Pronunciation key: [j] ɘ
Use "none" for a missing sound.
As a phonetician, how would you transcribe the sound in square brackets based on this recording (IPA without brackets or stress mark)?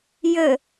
j